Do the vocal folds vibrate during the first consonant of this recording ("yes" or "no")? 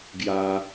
yes